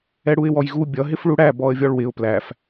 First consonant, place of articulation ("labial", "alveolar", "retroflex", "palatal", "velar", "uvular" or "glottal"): retroflex